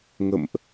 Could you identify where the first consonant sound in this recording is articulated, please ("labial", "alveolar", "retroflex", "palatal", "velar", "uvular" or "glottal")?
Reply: velar